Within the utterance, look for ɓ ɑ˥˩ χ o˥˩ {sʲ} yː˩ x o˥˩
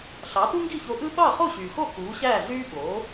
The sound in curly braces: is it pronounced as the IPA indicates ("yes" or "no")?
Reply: no